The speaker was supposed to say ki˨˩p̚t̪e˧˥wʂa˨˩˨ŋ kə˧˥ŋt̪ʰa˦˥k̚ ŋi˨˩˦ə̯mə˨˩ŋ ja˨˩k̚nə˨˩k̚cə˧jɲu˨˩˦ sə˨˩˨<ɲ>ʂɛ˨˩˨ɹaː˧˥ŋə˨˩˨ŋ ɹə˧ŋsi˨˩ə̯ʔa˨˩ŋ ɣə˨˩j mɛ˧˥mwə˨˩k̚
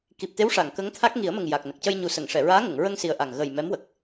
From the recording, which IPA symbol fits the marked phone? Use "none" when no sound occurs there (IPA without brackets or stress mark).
ŋ